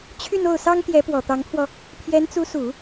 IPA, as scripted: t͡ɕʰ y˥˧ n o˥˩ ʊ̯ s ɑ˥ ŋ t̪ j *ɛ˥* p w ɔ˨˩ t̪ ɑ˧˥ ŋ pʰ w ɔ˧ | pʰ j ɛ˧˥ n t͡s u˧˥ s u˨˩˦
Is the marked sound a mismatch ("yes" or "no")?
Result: yes